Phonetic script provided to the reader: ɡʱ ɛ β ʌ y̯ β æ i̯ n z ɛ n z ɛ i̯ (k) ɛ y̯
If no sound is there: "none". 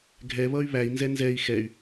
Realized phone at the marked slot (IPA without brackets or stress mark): x